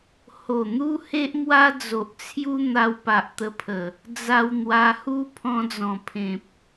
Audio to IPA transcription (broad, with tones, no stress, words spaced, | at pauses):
ho˨˩n̪u˦ he˦ʔmwa˦d͡zo˨ʔt͡sʰju˦ n̪a˧wpa˨ʔt̪ə˧pʰə˨˩ | d͡za˧wn̪wa˧hu˦ pʰɔ̃˧d͡zɔ̃˨˩pʰẽ˨p̚